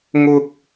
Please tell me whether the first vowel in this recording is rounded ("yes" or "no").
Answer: yes